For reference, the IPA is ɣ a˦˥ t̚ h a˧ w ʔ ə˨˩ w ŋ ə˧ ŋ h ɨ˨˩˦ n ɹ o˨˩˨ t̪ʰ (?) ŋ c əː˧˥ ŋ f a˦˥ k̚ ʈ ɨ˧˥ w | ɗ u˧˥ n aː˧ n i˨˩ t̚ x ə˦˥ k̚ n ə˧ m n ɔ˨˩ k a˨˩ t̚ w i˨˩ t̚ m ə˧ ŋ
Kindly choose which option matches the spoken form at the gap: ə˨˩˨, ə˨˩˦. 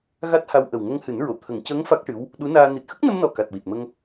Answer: ə˨˩˦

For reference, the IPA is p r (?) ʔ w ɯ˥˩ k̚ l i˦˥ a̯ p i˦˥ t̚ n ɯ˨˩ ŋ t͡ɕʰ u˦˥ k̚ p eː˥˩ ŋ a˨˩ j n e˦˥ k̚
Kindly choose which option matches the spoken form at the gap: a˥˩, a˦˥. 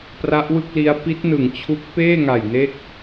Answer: a˦˥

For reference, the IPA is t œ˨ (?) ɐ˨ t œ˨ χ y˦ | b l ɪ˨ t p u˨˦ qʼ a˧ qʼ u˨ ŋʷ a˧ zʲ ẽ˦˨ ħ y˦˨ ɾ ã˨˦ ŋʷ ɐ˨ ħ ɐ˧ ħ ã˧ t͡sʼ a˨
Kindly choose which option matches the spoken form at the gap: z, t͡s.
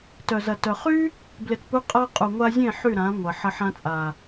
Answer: z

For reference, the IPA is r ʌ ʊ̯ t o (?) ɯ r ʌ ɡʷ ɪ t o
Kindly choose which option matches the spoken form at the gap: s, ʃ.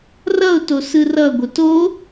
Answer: s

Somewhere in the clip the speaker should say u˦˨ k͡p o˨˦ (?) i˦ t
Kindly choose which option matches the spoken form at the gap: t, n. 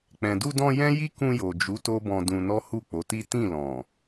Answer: t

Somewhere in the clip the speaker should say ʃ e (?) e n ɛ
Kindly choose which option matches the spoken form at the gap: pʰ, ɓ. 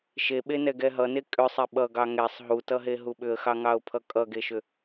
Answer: ɓ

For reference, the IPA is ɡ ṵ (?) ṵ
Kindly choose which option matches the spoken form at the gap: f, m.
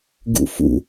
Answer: f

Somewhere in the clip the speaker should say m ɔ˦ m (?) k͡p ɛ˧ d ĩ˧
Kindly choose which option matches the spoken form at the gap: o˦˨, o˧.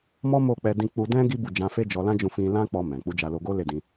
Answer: o˦˨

